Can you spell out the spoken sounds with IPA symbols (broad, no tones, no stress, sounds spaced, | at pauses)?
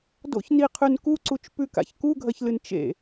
d o̰ ç n i qʰ ʉ n k u ǀ u t͡ʃ p ʉ k a̰ ç k u ɡʱ ɐ ç l ɨ n t͡ʃ ḛ